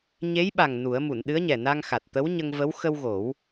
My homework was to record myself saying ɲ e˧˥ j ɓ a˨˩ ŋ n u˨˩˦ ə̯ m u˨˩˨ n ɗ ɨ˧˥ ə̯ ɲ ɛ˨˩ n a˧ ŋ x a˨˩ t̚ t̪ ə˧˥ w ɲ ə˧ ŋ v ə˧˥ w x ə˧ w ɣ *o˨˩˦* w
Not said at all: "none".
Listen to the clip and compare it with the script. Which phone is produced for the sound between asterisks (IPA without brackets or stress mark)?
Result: o˨˩˦